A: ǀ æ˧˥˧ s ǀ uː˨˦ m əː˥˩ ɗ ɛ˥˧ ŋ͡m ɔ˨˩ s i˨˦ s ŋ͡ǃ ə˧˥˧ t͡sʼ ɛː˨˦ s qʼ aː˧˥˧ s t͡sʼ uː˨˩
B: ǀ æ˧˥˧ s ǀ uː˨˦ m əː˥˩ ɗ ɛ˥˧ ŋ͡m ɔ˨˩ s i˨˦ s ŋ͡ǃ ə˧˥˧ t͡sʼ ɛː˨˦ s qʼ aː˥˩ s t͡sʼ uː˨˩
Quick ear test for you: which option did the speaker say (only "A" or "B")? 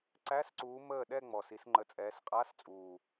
A